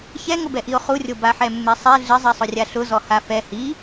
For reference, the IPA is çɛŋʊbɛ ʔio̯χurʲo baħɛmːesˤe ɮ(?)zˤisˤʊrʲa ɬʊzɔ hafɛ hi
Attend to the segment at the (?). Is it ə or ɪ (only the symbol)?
ɪ